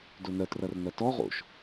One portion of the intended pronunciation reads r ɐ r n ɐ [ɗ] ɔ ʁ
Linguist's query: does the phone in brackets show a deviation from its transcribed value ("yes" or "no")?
yes